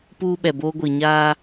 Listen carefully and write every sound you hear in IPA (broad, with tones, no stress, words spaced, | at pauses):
puː˦ɓɛ˨boː˦ ɡʷi˨ɲaː˦